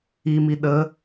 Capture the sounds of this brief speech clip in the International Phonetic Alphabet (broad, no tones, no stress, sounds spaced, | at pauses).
i m i ɗ ə